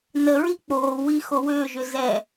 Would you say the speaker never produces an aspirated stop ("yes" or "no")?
yes